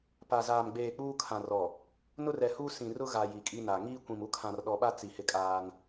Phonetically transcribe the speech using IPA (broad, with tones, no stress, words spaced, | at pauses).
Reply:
pa˨zaː˨m ɡ͡beː˨ k͡puː˦kʰã˨rɔ˨ | nʊ˦rɛ˨hu˦sĩ˨ rʊ˦ɣa˨ ji˨kʼi˦na˨ ŋiː˦kʷĩ˨mu˦ kʰã˨rɗɔ˨ɓa˦ t͡si˨hɪ˦kʼaː˦n